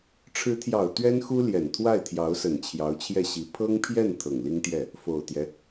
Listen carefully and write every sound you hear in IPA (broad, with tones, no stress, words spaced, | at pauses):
ʈ͡ʂʰɻ̩˧˥t̪ʰjɑ˨˩ʊ̯ t̪ɥɛ˥nxu˥ljɛ˨˩n t̪ʰwa˥˩ɪ̯t̪ʰjɑ˧˥ʊ̯sə˨˩n t͡ɕʰjɑ˧˥ʊ̯t͡ɕʰjɛ˥˩ɕi˧˥ pʰɤ˥ŋpʰjɛ˥˩n t̪ʰɤ˨˩ŋli˥ŋt̪jɛ˥˩ | fo˨˩ʊ̯t̪jɛ˦